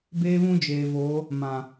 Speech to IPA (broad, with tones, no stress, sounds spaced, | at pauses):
b eː˦ β ũ˦ d͡ʒ eː˨ v oː˨˦ | m ã˨